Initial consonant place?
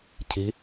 palatal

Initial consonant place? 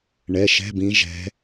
retroflex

